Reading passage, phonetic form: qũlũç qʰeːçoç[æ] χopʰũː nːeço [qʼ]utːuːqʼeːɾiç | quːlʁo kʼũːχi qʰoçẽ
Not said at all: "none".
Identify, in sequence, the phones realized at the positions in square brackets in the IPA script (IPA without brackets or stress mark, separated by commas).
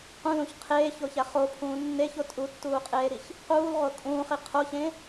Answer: æ, tʼ